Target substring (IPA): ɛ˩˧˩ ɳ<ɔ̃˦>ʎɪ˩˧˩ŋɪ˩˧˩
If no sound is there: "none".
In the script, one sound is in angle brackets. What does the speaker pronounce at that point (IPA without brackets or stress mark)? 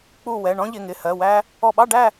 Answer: ɔ̃˦